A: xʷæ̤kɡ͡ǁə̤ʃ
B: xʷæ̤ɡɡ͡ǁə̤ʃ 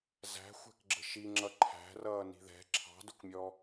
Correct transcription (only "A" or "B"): A